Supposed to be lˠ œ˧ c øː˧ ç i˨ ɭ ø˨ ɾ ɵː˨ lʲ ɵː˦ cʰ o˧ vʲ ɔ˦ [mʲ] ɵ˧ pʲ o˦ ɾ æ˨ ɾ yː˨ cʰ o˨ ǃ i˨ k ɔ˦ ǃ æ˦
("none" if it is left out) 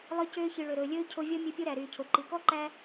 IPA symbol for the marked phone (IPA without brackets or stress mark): mʲ